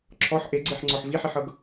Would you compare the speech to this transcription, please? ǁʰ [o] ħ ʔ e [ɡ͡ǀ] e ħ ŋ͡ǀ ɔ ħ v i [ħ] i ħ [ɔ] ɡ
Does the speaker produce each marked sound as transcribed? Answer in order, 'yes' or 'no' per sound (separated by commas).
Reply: no, yes, yes, no